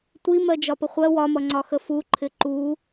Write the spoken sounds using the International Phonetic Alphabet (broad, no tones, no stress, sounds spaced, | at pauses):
tʷ i m ɜ d͡ʒ ɒ p ə χʷ ɜ w ɒ m ʌ ŋ͡ǀ ɒ x ə f u ǃʰ ɪ ǃ u